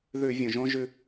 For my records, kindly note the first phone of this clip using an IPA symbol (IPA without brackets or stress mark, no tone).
ð